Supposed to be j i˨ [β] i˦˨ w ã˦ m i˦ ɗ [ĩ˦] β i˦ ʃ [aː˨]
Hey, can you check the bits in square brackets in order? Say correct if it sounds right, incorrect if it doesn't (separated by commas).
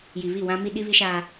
correct, incorrect, incorrect